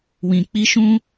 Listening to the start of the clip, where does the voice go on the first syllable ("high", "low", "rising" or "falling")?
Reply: low